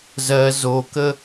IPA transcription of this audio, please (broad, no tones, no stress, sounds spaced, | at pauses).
z ɜ z o k ə